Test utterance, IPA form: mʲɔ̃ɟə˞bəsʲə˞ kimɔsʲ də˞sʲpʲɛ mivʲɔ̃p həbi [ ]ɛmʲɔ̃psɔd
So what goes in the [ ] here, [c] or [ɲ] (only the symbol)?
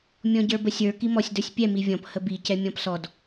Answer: c